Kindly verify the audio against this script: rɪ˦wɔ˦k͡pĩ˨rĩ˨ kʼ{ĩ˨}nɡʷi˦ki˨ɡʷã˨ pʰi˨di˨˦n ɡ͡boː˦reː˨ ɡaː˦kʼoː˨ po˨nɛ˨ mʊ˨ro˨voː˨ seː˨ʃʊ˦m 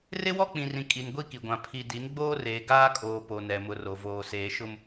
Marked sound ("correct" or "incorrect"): incorrect